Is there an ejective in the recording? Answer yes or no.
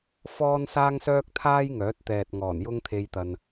no